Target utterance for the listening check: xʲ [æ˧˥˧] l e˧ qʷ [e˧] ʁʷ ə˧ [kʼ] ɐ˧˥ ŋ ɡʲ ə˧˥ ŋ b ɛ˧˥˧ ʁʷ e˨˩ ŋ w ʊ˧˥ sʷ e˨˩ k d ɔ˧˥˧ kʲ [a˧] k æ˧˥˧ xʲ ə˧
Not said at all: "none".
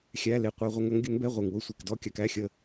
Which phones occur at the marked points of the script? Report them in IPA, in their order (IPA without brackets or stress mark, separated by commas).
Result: æ˧˥˧, e˧, ŋ, a˧